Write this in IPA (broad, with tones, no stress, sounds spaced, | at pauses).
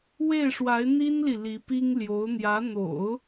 w e˥˩ ɪ̯ ʂ w a˧˥ ɪ̯ n̪ i˥ n l i˨ l i˧˥ p i˥ ŋ l j o˧˥ ʊ̯ n̪ j ä˧˥ n̪ o̰˨˩˦ ʊ̯